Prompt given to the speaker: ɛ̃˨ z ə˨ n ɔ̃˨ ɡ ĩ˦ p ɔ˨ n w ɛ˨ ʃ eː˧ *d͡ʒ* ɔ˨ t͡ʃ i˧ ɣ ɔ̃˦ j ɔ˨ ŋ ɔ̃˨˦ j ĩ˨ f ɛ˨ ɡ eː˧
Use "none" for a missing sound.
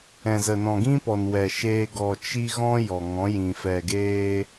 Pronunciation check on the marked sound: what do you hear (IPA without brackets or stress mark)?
ɡ